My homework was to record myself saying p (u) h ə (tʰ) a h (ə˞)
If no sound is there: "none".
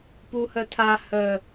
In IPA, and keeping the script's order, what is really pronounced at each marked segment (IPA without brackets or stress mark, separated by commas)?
u, tʰ, ə